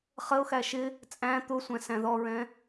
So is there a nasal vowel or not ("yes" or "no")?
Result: yes